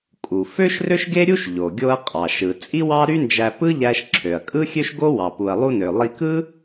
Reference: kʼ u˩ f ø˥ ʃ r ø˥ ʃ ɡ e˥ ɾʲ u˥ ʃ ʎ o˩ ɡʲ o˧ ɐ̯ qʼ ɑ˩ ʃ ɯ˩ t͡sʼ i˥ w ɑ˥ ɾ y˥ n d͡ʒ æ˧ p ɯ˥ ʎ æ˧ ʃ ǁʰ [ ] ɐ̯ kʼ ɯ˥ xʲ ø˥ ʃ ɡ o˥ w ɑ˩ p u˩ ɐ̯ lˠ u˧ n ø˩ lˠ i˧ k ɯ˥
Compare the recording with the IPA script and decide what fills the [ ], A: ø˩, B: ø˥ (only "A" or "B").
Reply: A